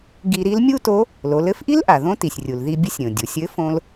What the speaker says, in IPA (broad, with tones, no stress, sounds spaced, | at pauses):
ɡ i˧ ɾ i˧˥ l mʲ u˥ t o˧˥ | l o˩˧ l ɘ˧˥ f ʔ i˥ l ʔ a˩ ð õ˥ t i˩ sʲ rʲ u˩ l ð i˧ bʲ ə˧˥ sʲ ɾʲ õ˩ dʲ u˩ sʲ ɘ˧˥ f õ˧ l